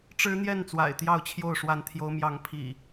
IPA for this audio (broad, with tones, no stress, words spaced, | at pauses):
ʈ͡ʂɻ̩˦n̪jɛ˥˨n t͡swa̰˨˩ɪ̯t̪jɑ˥˨ʊ̯t͡ɕʰjo˥˨ʊ̯ ʂwa˨˦nt̪ʰjo˨˦ʊ̯mjɑ˨˦ŋ pʰḭ˨˩